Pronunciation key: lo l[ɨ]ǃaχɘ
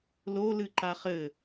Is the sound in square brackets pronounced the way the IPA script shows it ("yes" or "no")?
yes